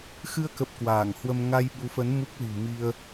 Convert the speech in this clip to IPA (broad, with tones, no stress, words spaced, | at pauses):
xɨ˧ə̯kə˨˩p̚ kwaː˧˩ŋhwə˧m ŋa˧jɓu˨˦fə˨˦n mu˦˥k̚lṳ˨˩mi˧ə̯